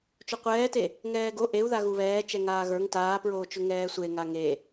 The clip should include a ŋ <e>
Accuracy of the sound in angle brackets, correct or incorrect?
correct